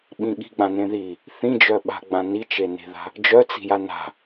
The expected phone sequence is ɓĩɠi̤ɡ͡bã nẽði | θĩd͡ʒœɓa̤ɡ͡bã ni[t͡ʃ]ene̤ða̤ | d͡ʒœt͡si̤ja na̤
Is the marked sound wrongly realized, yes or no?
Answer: no